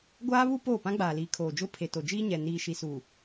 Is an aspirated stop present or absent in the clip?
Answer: present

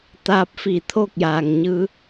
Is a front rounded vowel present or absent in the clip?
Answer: absent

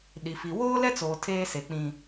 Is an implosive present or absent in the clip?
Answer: present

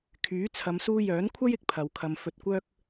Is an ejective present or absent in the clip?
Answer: absent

